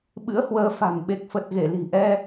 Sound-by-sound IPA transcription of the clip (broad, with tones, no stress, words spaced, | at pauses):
ɓɨ̰˧˥ə̯hwəː˨˦fa̤˨˩m ɓe˨˩k̚fə˨˩t̚ɣe˧˩ li̤˨˩ʔɛ˧